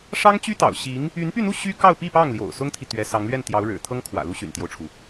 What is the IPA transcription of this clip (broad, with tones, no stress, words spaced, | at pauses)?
ʂɑ˥ŋt͡ɕy˥t̪ɑ̰˨˩ʊ̯ɕi˧˥ŋ | y˧˥npy˥˧n̪u˥˩ ɕy˥kɑ˥˧ʊ̯pi˥˧ pɑ˥˩ŋljo̰˨˩ʊ̯ sʊ˥ŋt̪ʰi˨ t̪ɥɛ˧˥sɑ˧˥ŋ lɥɛ˥˩n t̪jɑ˧˥ʊ̯ɻɻ̩˨˩ t̪ʰɤ˥ŋkʰwä̰˨˩ lu˥ɕy̰˨˩nt̪jo˦ʊ̯ʈ͡ʂʰu˩